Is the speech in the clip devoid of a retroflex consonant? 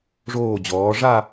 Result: no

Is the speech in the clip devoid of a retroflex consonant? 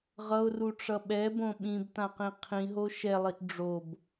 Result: no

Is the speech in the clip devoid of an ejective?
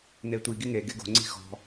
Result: yes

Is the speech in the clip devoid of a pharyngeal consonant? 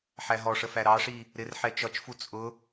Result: no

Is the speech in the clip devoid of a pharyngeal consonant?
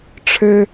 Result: yes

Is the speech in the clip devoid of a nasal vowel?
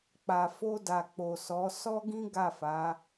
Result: no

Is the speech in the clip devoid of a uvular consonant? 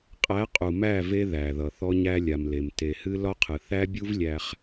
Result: no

